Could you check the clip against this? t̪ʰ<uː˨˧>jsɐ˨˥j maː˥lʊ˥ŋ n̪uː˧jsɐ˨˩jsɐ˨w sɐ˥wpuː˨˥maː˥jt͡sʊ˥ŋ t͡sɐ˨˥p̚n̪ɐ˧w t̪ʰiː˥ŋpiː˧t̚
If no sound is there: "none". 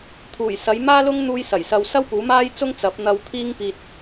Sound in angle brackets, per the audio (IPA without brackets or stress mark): uː˨˩